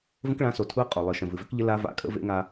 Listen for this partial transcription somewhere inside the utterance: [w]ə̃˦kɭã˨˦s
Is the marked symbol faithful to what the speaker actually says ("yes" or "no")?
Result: no